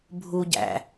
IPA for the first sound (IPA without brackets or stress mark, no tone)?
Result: bʱ